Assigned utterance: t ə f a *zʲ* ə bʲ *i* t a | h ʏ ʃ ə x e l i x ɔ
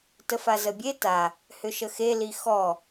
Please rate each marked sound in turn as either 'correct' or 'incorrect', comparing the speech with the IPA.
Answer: incorrect: z, incorrect: e

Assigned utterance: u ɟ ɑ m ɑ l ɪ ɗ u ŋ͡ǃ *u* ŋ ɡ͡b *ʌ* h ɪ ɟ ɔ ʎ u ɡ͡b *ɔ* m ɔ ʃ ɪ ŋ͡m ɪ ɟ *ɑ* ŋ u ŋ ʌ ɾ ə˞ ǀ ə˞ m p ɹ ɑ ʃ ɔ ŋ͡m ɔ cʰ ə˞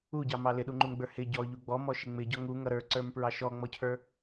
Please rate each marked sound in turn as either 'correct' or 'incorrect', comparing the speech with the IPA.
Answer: correct, incorrect: ə˞, correct, incorrect: ɔ

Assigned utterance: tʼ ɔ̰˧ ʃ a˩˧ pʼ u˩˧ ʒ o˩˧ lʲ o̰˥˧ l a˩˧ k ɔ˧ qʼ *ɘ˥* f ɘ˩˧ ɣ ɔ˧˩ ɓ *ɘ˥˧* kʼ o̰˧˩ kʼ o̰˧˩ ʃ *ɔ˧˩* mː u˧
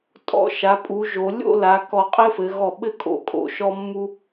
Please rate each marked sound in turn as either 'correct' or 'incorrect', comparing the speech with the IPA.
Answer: correct, correct, incorrect: ɔ˧

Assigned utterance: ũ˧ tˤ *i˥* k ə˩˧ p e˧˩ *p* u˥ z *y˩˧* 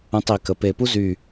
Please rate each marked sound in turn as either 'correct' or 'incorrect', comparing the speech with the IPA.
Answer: incorrect: i˩˧, correct, incorrect: y˧˩

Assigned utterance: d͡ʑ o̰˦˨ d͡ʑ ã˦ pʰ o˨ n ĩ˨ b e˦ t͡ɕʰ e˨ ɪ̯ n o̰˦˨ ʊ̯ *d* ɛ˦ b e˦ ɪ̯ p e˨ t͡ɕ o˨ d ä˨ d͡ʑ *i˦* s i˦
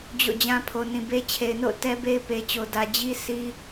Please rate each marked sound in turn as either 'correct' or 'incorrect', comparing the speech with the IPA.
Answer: incorrect: t, correct

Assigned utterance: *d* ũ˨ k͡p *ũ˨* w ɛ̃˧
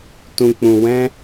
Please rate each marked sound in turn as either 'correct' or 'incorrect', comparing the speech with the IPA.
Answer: incorrect: t, correct

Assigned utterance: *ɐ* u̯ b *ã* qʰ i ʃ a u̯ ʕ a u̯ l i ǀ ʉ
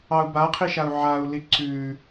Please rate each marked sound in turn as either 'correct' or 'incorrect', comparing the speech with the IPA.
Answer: incorrect: ɑ, incorrect: a

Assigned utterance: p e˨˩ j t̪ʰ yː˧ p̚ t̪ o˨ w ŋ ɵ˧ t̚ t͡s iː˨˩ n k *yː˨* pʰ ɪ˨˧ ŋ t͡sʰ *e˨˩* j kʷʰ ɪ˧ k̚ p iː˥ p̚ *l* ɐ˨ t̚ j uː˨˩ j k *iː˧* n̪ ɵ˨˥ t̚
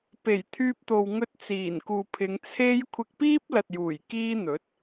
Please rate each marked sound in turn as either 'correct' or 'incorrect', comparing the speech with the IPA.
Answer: incorrect: uː˨, incorrect: e˥, correct, incorrect: iː˥

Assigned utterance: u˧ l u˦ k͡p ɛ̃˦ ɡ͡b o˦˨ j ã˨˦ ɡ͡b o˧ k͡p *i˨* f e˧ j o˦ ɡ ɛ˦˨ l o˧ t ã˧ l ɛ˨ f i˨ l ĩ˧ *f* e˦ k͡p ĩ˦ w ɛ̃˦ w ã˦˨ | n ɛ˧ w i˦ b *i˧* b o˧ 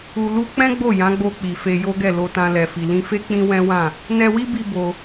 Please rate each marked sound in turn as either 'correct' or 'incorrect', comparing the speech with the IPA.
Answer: correct, correct, correct

